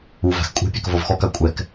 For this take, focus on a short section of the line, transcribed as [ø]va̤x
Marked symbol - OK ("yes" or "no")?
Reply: no